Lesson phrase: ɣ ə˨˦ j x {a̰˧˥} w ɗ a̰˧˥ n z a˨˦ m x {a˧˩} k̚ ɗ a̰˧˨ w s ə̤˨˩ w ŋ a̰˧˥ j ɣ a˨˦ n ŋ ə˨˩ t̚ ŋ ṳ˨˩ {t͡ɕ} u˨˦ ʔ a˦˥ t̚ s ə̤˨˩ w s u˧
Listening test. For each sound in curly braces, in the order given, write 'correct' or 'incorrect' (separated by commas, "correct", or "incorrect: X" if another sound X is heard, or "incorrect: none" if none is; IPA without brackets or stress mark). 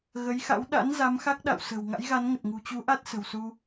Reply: correct, incorrect: a˦˥, correct